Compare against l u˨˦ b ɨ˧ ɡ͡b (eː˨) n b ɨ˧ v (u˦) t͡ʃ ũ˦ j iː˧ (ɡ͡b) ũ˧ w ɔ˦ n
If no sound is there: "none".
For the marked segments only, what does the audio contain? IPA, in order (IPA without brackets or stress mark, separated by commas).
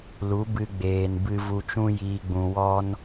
eː˨, u˧, ɡ͡b